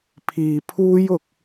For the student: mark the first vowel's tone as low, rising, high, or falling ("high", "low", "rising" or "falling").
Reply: low